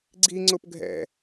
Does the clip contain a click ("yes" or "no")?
yes